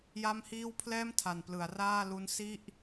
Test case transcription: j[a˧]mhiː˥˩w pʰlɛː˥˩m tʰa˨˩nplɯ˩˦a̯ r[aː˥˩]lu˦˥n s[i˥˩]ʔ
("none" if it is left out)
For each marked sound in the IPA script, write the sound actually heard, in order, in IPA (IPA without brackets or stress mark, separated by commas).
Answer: a˥˩, aː˥˩, i˥˩